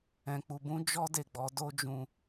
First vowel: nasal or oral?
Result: nasal